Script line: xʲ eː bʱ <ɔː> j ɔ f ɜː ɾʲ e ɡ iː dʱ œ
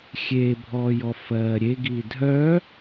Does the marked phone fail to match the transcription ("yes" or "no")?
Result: no